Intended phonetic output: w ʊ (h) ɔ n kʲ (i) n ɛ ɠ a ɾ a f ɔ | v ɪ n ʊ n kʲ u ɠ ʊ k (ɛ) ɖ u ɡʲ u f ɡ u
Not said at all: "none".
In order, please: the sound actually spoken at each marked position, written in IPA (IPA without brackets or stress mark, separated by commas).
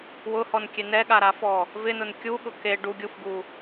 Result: h, e, e